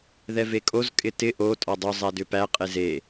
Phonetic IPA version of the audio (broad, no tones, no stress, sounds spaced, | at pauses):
ð ɛ v e kʼ o z kʼ ɪ t ɪ ʔ o tʼ ɒ dˤ ʏ zˤ æ d ʏ p æ qʼ e z e